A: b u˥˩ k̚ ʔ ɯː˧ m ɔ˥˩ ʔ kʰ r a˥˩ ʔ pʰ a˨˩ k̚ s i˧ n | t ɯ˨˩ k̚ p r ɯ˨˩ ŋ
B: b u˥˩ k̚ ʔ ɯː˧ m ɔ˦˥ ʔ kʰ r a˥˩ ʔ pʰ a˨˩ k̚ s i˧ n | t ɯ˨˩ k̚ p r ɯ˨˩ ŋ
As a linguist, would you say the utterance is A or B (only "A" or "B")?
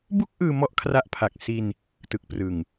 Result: A